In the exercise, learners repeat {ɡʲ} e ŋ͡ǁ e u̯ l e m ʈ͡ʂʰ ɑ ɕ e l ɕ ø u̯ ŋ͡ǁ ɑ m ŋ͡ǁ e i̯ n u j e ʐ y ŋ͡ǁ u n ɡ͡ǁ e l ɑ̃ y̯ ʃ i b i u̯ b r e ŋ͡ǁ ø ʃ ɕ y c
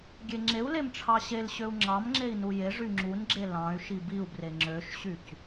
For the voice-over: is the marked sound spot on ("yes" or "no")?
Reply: yes